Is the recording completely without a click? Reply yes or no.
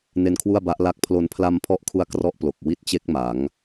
yes